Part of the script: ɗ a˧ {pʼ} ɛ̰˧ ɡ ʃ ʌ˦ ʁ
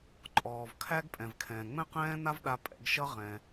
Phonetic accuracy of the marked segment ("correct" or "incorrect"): correct